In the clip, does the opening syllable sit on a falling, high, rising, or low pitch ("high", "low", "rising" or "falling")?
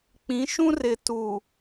rising